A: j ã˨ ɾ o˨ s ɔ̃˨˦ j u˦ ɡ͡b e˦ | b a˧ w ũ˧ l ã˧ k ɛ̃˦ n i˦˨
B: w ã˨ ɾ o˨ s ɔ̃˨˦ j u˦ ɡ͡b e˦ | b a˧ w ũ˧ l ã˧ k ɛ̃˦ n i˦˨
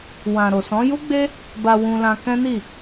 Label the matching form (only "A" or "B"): B